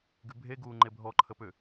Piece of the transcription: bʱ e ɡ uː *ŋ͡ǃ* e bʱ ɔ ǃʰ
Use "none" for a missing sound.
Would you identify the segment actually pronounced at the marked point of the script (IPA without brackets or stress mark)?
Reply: ŋ͡ǃ